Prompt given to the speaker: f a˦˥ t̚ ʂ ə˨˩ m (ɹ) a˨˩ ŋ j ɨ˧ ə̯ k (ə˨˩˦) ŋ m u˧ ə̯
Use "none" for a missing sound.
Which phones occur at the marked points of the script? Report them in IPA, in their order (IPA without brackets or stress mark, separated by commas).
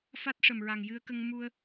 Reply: ɹ, ə˧